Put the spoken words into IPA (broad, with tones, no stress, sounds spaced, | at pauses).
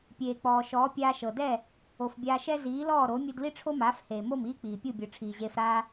pʲ eː˩ k͡p ɔː˩ ʃ ɔː˩˥ pʲ aː˧ ʃ ɤ˩ d ɛ˥˩ | o˩ f bʲ aː˧ ʃ ɛ˥ z iː˩˥ l ɔː˥˩ ɾ o˩˥ mʲ u˧ d l i˥ ʈ͡ʂʰ o˥ m aː˩˥ f h eː˩ m o˥˩ m iː˥ k͡p iː˩ pʲ u˥˩ bʲ ɯ˩ ʈ͡ʂʰ iː˩ ʑ eː˧ f ɾ aː˥